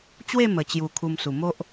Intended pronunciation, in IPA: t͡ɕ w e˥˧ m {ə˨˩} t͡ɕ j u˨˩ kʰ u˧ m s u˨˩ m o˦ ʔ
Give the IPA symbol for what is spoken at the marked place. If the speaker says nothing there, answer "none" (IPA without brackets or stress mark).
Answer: ə˨˩